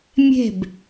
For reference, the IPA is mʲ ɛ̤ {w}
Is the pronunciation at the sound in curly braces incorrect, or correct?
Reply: incorrect